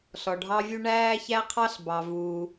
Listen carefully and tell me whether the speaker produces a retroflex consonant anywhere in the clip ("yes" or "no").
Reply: yes